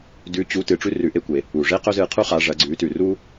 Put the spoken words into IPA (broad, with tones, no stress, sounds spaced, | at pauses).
d ʉ˧˥ t͡ɕ u˧˥ t ɨ˩˧ ʈ͡ʂ ʉ˥ r ʉ˩˧ ʔ e˧ kʷ e˩ | u˩ ʐ e˥ q ɵ˥ z ɨ˧ qʰ u˥ χ a˩˧ ʐ ɐ˩˧ ɡ͡ǀ ʉ˩˧ t ʉ˩ r u˥